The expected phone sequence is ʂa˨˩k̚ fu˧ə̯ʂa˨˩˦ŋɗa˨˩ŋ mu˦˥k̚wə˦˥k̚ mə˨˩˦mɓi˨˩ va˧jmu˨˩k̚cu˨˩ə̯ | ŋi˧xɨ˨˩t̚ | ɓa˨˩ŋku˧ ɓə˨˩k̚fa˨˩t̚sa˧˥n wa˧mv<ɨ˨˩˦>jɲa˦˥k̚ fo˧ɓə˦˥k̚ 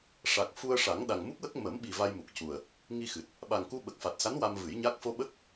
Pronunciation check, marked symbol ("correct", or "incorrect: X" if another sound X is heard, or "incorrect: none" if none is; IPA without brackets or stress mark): correct